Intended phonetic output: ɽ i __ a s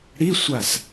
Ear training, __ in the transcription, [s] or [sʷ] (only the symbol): sʷ